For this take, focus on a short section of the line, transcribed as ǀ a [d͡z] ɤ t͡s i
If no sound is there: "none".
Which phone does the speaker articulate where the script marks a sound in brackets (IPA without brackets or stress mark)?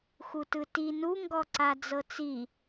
d͡z